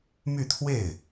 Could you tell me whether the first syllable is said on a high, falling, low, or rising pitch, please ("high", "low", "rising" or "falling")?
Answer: falling